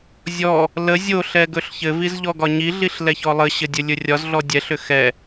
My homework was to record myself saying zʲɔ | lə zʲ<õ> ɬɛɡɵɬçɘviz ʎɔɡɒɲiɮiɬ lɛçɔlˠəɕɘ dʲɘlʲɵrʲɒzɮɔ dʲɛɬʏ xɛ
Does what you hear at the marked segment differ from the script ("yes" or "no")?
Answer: yes